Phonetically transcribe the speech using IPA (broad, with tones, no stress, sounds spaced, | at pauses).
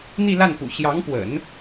n̪ i˥˧ l a˥˩ n p ṵ˨˩ ɕ j ɑ˧˥ ŋ p w ə̰˨˩˦ n